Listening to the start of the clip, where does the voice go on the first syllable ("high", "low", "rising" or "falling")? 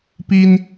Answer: high